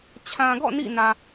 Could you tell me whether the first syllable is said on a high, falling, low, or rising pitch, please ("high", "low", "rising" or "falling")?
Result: low